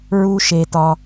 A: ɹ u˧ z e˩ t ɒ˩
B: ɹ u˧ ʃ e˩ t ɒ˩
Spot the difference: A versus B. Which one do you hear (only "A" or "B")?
B